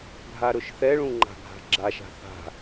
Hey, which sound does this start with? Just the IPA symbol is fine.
ɡʱ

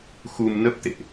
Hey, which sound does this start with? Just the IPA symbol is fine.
x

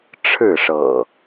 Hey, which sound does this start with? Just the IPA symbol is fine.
ʈ͡ʂʰ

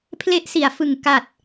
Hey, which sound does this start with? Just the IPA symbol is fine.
pʰ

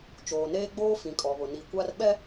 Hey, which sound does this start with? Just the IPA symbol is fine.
t͡ʃ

